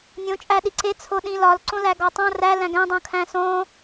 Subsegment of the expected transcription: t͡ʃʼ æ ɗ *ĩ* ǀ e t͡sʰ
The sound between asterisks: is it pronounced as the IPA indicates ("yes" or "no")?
no